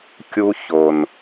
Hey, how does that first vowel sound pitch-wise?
high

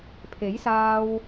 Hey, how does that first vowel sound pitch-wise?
rising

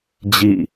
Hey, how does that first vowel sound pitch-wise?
falling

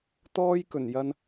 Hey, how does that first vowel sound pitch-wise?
high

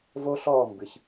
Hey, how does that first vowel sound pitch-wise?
high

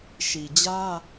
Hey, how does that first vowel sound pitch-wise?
low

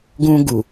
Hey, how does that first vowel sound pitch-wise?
high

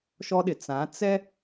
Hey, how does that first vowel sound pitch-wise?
high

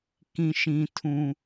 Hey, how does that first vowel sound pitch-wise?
high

